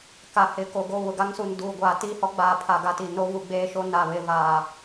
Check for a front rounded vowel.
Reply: absent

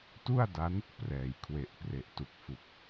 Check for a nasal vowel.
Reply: absent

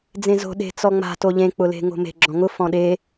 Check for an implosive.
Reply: present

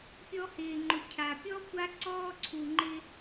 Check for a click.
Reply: present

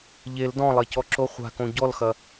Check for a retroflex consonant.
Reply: absent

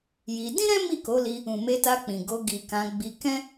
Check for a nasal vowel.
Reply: present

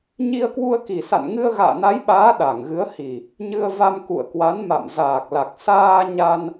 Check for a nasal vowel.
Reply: absent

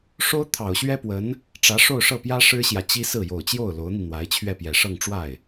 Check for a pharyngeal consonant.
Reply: absent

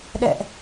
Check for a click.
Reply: absent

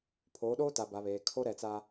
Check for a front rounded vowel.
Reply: absent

